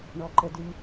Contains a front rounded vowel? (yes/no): yes